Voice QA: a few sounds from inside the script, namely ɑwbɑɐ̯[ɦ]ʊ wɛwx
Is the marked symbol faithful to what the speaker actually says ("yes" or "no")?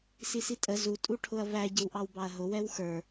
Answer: yes